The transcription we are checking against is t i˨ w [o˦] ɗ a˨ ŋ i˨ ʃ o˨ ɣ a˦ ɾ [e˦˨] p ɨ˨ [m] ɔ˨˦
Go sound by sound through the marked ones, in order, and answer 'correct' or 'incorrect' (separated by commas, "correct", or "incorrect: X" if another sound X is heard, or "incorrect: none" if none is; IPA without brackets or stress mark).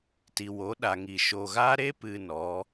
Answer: incorrect: o˨˦, incorrect: e˦, incorrect: n